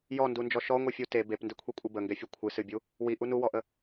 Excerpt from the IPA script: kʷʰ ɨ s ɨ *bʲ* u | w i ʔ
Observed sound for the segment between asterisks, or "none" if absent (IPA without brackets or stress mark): bʲ